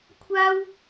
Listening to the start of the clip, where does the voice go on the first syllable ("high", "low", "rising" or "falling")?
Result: high